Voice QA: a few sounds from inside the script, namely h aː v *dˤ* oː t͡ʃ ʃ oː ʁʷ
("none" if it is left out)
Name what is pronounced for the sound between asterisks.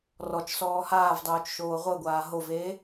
dˤ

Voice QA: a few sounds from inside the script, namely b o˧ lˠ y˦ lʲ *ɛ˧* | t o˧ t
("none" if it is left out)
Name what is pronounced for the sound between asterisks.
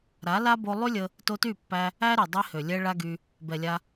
ə˧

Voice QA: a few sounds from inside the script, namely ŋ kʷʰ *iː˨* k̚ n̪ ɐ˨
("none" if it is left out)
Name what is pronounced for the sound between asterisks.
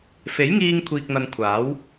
iː˨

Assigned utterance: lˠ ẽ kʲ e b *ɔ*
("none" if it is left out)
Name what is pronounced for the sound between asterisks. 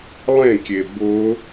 ʊ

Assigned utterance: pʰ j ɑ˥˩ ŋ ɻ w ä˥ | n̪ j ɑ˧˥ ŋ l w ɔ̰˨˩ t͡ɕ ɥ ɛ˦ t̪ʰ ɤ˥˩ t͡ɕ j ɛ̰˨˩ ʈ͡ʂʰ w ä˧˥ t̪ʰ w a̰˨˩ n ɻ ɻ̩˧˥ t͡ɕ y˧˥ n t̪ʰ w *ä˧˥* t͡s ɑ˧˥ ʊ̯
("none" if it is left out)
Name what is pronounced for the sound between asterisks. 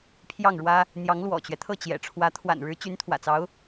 ä̰˨˩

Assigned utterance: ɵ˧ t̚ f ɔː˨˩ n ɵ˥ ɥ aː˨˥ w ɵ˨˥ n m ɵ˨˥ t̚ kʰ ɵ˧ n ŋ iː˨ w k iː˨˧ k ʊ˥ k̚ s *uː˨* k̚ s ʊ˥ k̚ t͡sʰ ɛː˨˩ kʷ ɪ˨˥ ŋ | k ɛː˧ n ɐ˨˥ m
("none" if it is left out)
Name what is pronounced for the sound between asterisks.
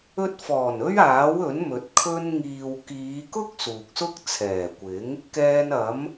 uː˨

